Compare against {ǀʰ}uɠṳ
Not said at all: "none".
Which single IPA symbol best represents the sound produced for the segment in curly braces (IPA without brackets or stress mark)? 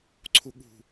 ǀʰ